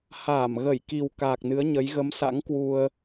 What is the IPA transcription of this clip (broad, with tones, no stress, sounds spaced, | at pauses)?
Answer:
h aː˧˩ m ɣ ə˧˩ j k i˨˩ w k aː˨˩ k̚ n ɨ˨˦ ə̯ ɲ ə˨˦ j ɣ ə˨˦ m s a̰˧˥ ŋ k w u˧ ə̯